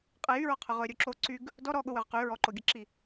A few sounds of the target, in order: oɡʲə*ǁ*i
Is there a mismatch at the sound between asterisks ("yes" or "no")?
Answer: no